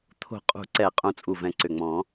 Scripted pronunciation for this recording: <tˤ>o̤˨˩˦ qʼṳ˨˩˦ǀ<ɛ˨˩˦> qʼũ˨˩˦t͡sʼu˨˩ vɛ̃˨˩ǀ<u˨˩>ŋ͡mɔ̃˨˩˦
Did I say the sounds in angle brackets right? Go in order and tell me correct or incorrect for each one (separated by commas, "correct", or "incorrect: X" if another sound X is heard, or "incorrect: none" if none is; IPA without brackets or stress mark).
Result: incorrect: t̪ʰ, correct, incorrect: ʏ˨˩